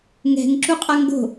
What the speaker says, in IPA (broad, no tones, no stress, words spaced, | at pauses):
ŋɛ̤ŋ ǁuqʼaŋɡo̤